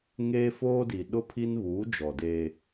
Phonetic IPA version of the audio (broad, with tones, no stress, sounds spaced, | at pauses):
ŋ eː˦ f oː˦ d i˨ ɗ ʊ˦ pʰ i˦ n β uː˨˦ d͡ʒ ɔ˨ d eː˦